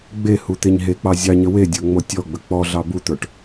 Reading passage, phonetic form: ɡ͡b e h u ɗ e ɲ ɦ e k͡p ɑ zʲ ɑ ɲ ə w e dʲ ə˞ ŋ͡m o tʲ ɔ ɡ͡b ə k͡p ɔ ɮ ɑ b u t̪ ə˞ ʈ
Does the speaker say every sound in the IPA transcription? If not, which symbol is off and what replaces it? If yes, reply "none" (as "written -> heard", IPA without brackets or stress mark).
ɗ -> t̪